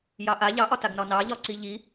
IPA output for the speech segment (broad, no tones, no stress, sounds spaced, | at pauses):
j ɑ ʔ a ʎ ɑ ʔ ɒ t a ɡ n ɒ n ɑ ʎ ɒ ǀ i ʎ i